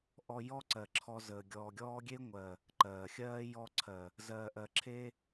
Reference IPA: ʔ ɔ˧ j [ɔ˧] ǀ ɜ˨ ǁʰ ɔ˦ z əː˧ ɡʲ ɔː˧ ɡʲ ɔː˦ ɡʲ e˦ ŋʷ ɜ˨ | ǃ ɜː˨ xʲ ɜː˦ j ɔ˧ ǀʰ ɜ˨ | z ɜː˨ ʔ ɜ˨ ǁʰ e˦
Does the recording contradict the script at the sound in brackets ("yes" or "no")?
yes